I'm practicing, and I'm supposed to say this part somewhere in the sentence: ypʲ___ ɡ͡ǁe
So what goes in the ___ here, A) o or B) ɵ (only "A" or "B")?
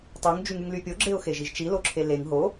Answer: A